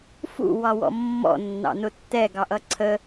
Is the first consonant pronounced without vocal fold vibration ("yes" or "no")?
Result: yes